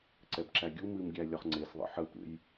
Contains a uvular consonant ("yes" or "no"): yes